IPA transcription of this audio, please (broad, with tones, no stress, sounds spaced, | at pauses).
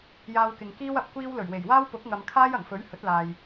j aː˧ w k ɪ˨ ŋ k iː˥ w ɐ˨ p̚ kʷ iː˥ w l ɵ˨˩ ɥ w e˨˩ j w aː˥ w p ʊ˨˥ k̚ ŋ ɐ˨ m kʰ aː˥ j ɐ˨˩ ŋ f ɵ˨˥ ɥ h ɵ˨˥ t̚ l aː˨ j